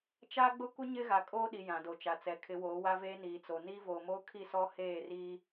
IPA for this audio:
t͡ʃa˦ɡ͡bʊ˦kʷɪ˦ ɲɪ˦ɣa˨kʼoː˦ɗi˨ jã˨do˨t͡ʃa˨t͡sɛ˨ kʰɪ˨˦woː˨˦ wa˦veː˦ niː˨t͡so˨ niː˦voː˨moː˦ kʰi˦˨sɔ˦ heː˦˨riː˦

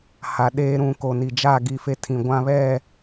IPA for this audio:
ha˨ ɗeː˦ ɾũ˨ ko˨ni˨d͡ʒaː˦˨ ɡi˦˨fe˦tʰĩ˨ ɡʷã˦βɛ˦˨

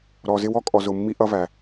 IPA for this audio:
ɾɔ˧zɪ˦w ɔ˦kʼɔ˧ zʊ˧mːi˦ʔʌ˦væ˧

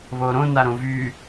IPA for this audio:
βoːɾõ naɾõvy

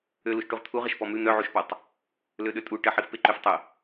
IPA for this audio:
øluʃʈuʁ t̪ʰuʁəʃ pɔmʉ n̪œʕuʃpɔtˤ | løɗøtʼu ʈəħifpe ǃøftˤə

